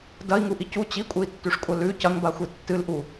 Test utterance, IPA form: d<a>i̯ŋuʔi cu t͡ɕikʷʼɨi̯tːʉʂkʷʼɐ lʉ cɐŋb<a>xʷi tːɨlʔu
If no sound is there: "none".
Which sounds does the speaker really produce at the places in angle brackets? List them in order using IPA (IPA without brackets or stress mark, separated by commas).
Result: ɐ, a